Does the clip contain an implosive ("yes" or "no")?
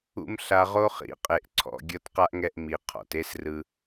no